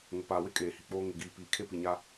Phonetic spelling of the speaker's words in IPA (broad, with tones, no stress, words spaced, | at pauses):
ŋʊ˨paː˨wɪ˦ kʼeː˨hi˨k͡poː˦ ŋɪ˨ɡiː˨ piː˨ kʰe˦pi˨ɲa˦